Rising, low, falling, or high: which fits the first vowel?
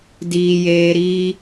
low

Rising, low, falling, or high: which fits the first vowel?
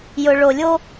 low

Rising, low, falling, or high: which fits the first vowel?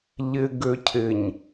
low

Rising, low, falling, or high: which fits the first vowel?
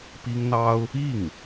high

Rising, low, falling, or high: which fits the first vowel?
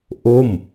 falling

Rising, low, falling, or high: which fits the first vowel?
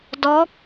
rising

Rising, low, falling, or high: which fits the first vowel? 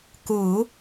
low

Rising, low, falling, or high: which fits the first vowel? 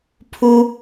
high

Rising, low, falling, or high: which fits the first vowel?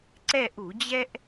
falling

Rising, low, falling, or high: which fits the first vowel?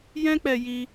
high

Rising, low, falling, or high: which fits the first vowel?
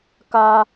high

